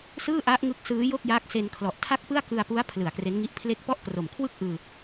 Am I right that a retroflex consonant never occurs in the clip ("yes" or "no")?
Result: yes